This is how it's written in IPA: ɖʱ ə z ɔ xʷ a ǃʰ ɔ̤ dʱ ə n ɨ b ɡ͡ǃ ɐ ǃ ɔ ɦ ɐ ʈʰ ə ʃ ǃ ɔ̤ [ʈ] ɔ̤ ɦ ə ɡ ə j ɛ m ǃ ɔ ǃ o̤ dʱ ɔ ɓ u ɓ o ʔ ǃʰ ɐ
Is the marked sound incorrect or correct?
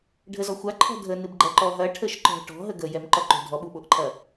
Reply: correct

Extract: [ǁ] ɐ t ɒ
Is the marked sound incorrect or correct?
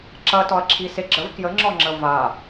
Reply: correct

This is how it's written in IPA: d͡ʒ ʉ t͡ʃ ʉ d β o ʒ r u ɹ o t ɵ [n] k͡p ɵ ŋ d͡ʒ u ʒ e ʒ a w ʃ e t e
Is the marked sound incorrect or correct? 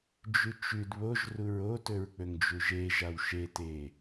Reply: incorrect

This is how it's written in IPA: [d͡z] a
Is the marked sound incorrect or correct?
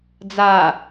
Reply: correct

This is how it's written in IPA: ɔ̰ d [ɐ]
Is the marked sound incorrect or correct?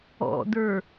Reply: incorrect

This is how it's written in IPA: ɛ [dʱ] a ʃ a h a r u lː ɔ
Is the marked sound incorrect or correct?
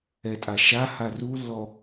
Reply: incorrect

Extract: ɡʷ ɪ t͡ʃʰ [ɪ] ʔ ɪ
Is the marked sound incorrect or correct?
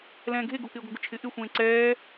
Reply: correct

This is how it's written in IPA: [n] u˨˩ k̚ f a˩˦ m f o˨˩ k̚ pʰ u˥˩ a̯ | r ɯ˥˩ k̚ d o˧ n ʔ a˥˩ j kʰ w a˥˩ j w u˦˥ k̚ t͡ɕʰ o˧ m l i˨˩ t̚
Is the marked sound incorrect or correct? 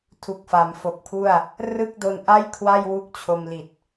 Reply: incorrect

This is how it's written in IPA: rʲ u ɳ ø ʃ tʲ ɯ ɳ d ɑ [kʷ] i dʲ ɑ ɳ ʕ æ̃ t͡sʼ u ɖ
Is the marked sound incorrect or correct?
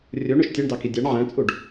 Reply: incorrect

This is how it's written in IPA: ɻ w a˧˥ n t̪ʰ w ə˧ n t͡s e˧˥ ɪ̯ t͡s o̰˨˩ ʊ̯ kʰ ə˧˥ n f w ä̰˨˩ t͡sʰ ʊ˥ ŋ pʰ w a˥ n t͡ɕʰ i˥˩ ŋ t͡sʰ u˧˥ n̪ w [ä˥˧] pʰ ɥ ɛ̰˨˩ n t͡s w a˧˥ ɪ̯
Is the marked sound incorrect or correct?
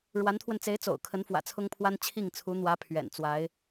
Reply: incorrect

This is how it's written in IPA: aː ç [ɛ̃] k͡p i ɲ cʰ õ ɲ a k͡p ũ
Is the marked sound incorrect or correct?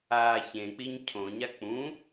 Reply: incorrect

